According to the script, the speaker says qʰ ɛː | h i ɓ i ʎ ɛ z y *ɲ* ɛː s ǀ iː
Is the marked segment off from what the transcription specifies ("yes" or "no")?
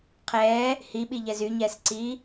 no